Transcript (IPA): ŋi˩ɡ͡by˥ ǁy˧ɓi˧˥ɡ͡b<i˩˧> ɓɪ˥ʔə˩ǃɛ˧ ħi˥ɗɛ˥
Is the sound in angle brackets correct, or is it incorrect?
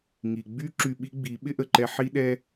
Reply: correct